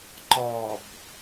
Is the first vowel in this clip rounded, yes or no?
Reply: yes